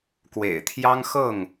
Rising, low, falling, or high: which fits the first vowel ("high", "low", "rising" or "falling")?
low